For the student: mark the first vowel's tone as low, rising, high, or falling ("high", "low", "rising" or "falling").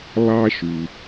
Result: high